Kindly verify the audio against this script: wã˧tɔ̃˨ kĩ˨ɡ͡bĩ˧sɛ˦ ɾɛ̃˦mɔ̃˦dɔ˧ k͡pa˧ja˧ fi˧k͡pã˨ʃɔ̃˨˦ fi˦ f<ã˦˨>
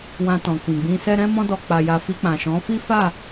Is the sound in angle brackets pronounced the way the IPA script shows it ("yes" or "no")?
no